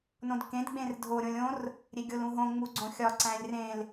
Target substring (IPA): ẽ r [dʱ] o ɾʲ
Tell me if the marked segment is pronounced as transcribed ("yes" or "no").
yes